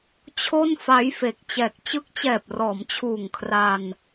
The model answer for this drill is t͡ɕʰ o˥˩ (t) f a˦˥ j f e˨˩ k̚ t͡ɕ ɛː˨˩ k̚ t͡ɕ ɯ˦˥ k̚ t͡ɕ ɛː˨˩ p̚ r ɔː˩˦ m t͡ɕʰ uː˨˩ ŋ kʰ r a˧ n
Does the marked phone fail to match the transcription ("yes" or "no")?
yes